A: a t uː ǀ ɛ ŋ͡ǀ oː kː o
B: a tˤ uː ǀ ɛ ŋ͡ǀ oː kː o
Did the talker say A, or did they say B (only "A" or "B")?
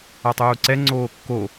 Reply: B